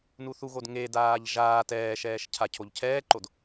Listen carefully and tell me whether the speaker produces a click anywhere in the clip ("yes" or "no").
yes